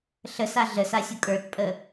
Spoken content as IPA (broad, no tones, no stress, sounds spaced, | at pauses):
ɬ ə s a ɮ ə s a sʲ ʊ kʼ ə˞ t pʼ ə